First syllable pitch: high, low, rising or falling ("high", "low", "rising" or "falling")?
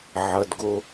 low